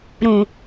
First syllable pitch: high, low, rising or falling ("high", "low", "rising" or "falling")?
low